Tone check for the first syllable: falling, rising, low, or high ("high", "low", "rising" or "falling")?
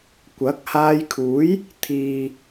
rising